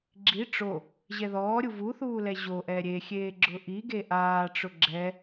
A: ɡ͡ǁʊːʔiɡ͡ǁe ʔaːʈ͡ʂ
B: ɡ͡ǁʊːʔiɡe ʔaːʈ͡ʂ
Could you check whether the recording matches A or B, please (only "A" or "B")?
B